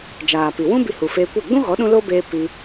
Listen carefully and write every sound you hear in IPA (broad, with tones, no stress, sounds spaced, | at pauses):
d͡ʒ aː˨ p i˨ w ũ˦ b i˧ h u˨ f eː˧ kʷ ɛ˦˨ ɡ͡b ũ˦ ɣ ɔ˨˦ ɗ ũ˧ l o˦ b eː˧ p i˧